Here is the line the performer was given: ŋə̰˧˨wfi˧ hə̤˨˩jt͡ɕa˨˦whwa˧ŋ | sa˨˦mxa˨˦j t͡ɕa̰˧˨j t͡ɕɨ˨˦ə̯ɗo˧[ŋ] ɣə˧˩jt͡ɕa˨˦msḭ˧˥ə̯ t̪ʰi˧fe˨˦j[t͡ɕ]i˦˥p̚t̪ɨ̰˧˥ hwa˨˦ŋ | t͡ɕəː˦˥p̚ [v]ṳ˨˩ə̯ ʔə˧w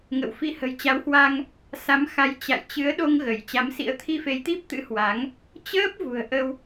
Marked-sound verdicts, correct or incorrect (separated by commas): correct, incorrect, correct